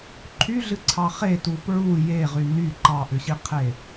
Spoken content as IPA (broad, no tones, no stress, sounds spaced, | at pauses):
ǃʰ y ɮ ɨ ǀʰ ɑ χ e t u p ɹ u j e ʁ y n y ǃ ɑ ʔ ʏ ɕ i qʰ e